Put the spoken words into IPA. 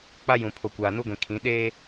k͡p a˦ j ũ˨ pʰ o˨ kʷ aː˨ n u˦ ɡʷ ĩ˨ kʰ ĩ˨˦ ɗ eː˦

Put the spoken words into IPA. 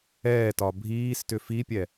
ɛː t ɒ bʱ iː s t ʏ f i pʲ ɛ

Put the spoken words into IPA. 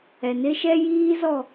ɛ˨ n ɪ˦ ʃ ɛ˦ j iː˦ z ɔ˦˨

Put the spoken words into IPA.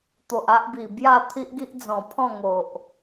t̪ o˨ ʔ a˦ ʔ b i˨˩ b j a˥˧ t̪ʰ i˦ ʔ ɡ i˦ ʔ d͡z ɔ̃˨˩ pʰ ɔ̃˥˧ ŋ o˨ ʔ

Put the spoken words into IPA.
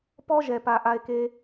p ɔ˦ ʒ ɛ˨ p a˨ ʔ a˦ e̯ k e˥

